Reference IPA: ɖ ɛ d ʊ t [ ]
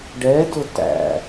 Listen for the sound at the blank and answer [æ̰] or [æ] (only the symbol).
æ̰